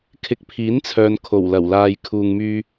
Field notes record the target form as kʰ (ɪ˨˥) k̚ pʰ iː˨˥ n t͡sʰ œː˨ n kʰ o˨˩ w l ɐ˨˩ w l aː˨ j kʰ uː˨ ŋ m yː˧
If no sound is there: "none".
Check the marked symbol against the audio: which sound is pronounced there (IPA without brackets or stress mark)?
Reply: ɪ˨˥